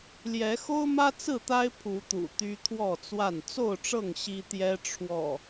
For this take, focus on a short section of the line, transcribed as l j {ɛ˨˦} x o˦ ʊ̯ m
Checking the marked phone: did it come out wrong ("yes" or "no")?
no